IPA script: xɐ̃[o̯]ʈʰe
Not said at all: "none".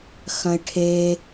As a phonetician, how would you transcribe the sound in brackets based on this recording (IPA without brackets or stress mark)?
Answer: e̯